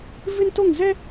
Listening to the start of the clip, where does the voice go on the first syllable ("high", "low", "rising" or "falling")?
high